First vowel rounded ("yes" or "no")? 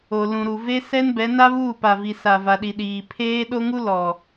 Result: yes